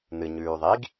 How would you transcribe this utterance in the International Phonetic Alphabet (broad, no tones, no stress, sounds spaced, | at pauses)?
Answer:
n ɨ ɲ ʉː ðˤ i ɡ